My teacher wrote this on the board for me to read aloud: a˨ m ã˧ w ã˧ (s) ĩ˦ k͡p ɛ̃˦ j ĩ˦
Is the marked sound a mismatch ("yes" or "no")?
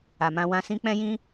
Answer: no